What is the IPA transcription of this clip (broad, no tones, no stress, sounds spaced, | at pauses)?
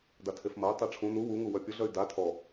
d a tʰ e f m ɐ y̯ tˤ e ʈ͡ʂʰ ũ n u w u ŋ u w œ pʲ ʊ ɮ œ y̯ d a tʰ ɔ